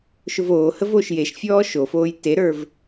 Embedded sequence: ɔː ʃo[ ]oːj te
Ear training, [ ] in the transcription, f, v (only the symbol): f